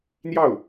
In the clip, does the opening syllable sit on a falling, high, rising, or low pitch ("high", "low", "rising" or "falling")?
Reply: falling